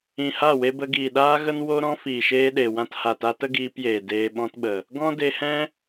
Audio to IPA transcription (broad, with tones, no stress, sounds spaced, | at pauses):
ĩ˨ h a˦˨ w e˧ b ə˧ ɡ iː˨ ɗ aː˦ ɣ ə˦ n w o˦ ɾ ɔ̃˦ f iː˨ ʃ eː˧ ɗ e˨ w ã˧ t h a˨ t a˧ t ə˦ ɡ iː˧ p j eː˨ d eː˧ ɓ ɔ̃˦ t ɓ ə˨ | ɡ ɔ̃˦ d e˧ h ɛ̃˦